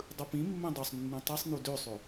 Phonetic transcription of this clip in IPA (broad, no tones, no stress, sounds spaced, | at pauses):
dˤ ɯ p ĩ mː ẽ dˤ u sˤ nː ũ tˤ ɯ sˤ n u d ø sˤ ø